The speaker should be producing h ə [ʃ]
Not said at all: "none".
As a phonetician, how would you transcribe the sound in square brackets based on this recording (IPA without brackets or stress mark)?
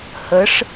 ʂ